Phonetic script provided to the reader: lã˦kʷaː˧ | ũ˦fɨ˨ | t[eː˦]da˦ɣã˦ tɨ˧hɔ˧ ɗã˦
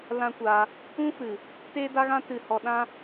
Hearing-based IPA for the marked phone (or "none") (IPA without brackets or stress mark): eː˦